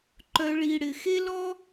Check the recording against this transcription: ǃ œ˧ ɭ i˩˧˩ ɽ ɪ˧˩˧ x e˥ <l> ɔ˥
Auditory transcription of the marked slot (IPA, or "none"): l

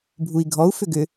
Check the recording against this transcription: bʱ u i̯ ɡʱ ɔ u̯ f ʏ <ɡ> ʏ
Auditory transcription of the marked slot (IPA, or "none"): ɡ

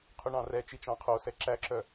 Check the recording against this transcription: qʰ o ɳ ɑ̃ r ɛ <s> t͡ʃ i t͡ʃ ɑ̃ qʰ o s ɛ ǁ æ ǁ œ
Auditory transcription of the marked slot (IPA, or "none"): none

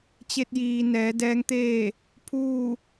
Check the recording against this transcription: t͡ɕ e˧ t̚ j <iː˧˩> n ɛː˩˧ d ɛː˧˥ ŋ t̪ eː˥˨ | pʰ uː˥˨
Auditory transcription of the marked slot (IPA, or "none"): iː˩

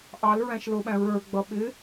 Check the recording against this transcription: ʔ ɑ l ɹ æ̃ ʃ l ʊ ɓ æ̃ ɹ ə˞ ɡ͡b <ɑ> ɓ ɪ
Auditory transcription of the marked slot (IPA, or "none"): ʌ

